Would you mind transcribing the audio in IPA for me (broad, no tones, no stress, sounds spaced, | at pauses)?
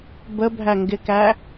b ə bʱ æ ŋ ɡ ɪ k æ